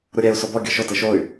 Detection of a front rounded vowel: present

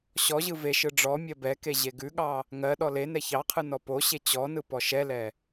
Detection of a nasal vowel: absent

